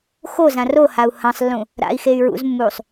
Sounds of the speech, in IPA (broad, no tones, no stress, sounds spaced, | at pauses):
x o z ã r o h a u̯ h ɐ̃ sˤ lː ũ | ɾ a̰ i̯ x e y̯ ɹ ṵ z mː uː sˤ